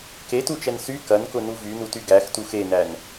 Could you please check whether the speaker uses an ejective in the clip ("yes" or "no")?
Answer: no